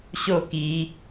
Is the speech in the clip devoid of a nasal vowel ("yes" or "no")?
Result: yes